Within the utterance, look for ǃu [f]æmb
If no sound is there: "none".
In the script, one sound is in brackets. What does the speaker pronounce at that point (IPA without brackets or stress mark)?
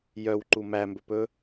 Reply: m